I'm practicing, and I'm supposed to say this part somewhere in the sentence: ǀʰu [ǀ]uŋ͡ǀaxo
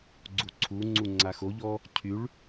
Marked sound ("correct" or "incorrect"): incorrect